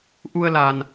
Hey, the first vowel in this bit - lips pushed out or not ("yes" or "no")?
yes